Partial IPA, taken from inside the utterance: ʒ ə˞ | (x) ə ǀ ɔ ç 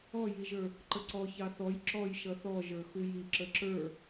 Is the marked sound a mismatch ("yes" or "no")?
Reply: yes